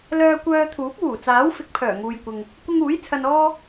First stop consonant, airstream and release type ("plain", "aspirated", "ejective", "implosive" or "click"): plain